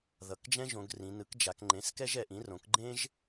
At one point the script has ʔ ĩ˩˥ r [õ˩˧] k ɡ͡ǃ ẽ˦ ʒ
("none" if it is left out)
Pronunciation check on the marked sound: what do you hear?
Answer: õ˩˥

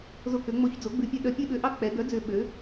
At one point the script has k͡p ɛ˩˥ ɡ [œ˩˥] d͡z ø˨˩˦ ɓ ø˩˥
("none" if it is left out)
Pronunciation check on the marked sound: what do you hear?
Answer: œ˩˥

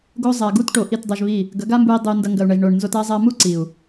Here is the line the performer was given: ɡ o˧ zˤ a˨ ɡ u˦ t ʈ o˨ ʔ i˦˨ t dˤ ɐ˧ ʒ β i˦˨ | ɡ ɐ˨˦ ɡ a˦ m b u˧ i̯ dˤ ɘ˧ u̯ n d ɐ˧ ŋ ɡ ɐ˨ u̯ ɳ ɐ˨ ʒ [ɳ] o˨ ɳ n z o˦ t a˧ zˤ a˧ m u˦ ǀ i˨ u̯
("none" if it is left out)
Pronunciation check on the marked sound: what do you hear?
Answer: ɳ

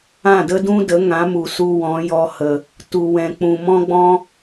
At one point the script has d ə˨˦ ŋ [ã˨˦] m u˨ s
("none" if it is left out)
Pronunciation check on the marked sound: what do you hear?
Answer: ã˨˦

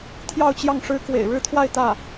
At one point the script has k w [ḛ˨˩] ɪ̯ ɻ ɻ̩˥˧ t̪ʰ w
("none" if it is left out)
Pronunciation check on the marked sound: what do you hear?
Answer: ḛ˨˩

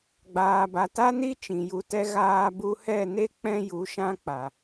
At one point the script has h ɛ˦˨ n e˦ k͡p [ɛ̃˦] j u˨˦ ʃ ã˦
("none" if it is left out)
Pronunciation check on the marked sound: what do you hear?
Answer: ɛ̃˦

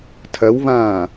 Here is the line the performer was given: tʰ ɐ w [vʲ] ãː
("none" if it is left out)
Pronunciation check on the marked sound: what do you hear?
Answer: v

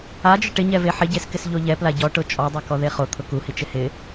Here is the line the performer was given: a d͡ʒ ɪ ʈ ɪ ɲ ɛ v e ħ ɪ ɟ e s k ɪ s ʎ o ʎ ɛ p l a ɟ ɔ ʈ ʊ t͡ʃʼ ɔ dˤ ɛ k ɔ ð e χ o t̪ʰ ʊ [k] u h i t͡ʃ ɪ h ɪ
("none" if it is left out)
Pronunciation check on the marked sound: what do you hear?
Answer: k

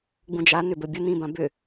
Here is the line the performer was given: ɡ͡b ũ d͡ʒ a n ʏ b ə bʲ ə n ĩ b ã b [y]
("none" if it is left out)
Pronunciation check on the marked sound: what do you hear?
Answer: ʏ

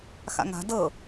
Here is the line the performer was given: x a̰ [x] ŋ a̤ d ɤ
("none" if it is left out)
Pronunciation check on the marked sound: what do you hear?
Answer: none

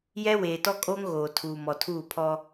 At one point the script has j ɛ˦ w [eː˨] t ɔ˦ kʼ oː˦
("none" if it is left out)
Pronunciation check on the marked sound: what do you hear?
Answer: eː˨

